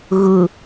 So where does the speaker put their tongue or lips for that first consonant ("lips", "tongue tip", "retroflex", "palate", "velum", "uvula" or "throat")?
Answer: velum